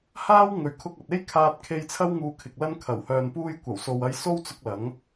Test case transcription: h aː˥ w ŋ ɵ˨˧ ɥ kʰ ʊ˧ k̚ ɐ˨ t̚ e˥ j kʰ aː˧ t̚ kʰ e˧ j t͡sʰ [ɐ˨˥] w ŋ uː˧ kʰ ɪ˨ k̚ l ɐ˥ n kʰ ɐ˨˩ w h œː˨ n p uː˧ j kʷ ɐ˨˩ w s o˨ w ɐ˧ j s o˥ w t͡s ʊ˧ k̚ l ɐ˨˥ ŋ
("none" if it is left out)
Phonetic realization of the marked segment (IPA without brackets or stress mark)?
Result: ɐ˥